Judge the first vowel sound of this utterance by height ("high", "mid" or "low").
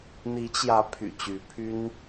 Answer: high